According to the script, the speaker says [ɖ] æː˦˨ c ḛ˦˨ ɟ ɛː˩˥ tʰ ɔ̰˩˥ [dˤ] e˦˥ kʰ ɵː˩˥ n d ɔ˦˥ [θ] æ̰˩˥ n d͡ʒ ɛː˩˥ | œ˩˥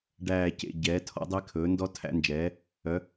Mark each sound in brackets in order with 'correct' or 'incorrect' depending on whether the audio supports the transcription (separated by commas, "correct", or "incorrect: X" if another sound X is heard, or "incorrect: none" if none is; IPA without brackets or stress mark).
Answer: correct, correct, incorrect: tʰ